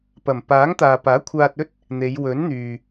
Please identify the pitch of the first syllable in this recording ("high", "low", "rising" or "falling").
low